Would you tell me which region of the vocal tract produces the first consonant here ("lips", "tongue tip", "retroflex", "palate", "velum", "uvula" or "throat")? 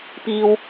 lips